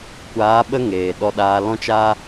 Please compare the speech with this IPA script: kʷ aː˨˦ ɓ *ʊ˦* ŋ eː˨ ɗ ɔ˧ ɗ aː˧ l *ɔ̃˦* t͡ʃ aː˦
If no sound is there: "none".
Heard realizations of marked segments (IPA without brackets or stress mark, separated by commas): ə˦, ɔ̃˦